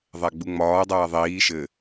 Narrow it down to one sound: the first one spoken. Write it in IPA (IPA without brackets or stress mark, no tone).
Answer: ðˤ